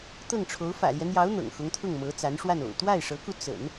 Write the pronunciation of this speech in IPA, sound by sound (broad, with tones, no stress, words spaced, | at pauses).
t̪ɤ˥˩ŋʈ͡ʂʰo˧˥ʊ̯ fä̰˨˩ljɛ˦n̪jɑ˧˥ʊ̯ n̪ɤ̰˨˩ŋxʊ˧˥ŋt̪ʰʊ˥˩ŋmɤ˧˥ t͡sa˧˥nʂwa˥˩no̰˨˩ʊ̯ t̪wa˥˩ɪ̯ʂɤ˧˥ku˧ t͡sə̰˨˩˦n